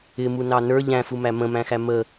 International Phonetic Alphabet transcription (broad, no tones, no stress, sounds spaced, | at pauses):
ɪ m u n ɑ n ə˞ ʎ æ̃ f u m æ m ə̃ m æ̃ x æ m ə